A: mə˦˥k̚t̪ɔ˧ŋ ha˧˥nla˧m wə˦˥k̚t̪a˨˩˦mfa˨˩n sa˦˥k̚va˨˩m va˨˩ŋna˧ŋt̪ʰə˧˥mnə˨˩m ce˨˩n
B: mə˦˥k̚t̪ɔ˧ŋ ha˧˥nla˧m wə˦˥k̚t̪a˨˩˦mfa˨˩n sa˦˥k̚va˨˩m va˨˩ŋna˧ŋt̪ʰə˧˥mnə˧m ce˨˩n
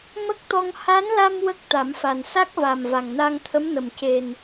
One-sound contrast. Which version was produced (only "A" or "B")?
A